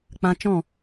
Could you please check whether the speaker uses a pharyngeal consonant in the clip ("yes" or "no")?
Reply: no